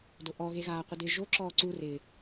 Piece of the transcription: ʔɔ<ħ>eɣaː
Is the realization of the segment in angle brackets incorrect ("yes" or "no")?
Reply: yes